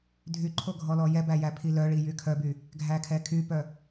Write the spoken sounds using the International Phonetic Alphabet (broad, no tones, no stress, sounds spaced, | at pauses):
dʱ y ǃʰ o ɡʱ ɔ l ɔ j ɛ b æ j æ pʰ i l œ ɭ i j y kʰ œ b y | ɡʱ æ kʰ ɛ kʰ y p œ